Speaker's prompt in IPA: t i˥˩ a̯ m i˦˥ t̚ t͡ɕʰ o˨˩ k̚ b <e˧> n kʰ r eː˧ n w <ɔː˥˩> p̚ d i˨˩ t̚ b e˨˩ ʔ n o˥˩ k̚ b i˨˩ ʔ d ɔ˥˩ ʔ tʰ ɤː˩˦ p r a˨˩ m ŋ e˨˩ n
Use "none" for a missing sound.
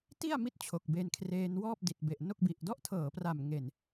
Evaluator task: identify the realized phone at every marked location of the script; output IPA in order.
e˧, ɔː˥˩

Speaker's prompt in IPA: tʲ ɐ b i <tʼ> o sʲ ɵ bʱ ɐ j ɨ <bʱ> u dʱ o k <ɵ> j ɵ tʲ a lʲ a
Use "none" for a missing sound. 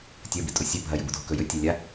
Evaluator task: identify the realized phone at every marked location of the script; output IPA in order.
tʼ, b, ɵ

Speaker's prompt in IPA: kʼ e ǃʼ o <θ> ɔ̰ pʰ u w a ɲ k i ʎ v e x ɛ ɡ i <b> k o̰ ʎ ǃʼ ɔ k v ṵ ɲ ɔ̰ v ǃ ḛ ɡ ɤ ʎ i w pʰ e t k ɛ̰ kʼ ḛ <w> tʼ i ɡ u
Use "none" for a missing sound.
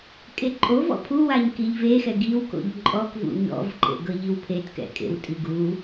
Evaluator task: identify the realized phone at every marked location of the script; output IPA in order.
v, w, w

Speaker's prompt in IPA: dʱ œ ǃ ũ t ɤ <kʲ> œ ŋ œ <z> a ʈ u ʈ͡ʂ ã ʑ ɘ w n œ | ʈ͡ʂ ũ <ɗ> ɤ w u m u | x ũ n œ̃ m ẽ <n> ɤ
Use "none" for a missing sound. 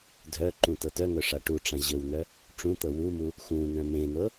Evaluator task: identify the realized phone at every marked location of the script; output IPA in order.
t, ʂ, t̪, n

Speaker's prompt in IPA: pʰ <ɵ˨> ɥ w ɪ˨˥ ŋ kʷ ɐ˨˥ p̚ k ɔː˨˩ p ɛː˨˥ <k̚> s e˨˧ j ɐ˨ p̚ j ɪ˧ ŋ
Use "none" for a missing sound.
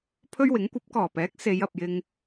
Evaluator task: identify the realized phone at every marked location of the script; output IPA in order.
ɵ˥, k̚

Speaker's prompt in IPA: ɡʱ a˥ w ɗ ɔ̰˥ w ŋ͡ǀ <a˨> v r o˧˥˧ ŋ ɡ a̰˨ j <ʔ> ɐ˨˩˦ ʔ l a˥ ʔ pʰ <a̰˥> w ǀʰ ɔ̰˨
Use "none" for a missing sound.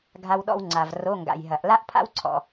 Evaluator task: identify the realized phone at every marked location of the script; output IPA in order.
a˨, ɦ, a̰˥

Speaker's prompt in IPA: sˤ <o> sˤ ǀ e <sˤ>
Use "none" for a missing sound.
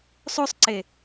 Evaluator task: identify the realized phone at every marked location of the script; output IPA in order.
o, none

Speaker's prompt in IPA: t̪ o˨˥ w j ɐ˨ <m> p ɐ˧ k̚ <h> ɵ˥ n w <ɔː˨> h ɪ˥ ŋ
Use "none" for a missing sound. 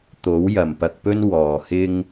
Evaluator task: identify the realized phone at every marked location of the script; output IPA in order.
m, p, ɔː˨

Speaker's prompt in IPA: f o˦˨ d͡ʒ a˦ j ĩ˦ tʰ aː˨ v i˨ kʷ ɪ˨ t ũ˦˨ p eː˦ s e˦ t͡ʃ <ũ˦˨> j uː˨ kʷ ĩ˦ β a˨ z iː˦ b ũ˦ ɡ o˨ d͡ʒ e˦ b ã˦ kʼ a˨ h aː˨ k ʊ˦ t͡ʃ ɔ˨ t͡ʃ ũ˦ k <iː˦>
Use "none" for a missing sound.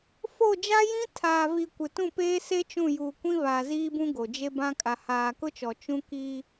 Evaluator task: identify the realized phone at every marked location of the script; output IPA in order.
ũ˦˨, iː˦

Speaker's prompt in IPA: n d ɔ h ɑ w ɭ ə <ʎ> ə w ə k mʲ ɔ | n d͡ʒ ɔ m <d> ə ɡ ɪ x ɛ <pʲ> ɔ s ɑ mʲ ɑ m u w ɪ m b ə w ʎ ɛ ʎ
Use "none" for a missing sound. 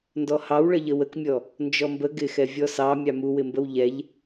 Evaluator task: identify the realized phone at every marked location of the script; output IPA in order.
ʎ, b, vʲ

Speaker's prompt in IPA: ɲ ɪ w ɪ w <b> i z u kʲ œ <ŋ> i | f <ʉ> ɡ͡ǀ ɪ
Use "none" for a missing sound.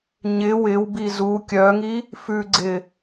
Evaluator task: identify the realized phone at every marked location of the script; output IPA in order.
b, ŋ, ʉ

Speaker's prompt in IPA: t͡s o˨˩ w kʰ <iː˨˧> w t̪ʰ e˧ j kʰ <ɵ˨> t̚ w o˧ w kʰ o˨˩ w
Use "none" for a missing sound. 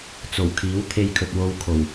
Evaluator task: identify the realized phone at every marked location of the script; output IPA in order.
iː˨˥, ɵ˨

